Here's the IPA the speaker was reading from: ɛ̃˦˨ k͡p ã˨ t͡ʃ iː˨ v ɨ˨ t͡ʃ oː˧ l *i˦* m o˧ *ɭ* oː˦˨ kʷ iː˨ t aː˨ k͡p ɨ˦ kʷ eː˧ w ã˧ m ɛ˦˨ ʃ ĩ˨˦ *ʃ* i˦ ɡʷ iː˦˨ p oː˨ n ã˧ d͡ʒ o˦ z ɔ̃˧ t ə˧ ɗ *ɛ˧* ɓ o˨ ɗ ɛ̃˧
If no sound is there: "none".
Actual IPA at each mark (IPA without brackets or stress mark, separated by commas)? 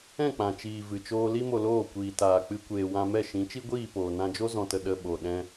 i˦, l, t͡ʃ, ə˧